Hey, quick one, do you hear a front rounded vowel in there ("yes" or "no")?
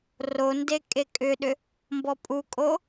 yes